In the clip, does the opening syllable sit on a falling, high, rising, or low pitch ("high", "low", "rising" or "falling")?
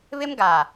high